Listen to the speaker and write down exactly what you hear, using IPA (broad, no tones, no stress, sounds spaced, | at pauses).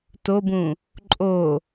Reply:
t o b ũ | ǃʼ o